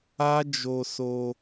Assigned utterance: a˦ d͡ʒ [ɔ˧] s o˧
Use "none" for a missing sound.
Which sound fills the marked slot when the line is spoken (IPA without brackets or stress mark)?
o˧